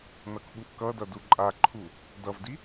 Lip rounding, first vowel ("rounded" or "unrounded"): unrounded